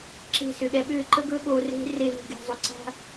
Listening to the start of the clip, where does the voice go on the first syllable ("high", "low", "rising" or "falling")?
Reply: falling